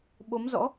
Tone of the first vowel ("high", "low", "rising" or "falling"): rising